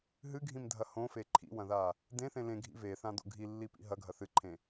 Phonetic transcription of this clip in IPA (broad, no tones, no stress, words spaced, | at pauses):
ɦɨɡʱĩmdʱɐ hõfe ǃʰḭwɐ̃ða | dẽθẽ lẽɡʱḭ veθãdo̰ ɡʱilːipḭ ɦɐɡʱɐ θɨǃʰẽ